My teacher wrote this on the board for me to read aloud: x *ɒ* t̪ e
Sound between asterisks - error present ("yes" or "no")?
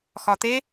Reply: no